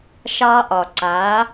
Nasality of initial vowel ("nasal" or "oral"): oral